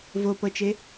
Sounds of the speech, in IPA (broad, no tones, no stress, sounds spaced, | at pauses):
v o p ɤ t͡ʃ e